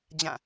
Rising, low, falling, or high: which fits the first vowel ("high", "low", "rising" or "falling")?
falling